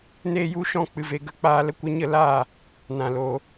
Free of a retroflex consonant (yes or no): yes